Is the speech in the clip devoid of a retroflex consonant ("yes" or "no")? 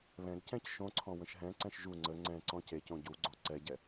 yes